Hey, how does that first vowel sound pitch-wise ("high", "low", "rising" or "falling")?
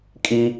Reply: high